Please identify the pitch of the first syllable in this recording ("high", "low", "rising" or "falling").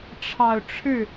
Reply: low